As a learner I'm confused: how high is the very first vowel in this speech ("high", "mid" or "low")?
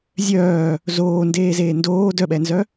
mid